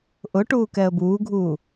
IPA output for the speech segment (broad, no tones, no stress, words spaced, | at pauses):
ʔʊ ʈuːkɛə̯buːɡʱuː